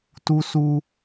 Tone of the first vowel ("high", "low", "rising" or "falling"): high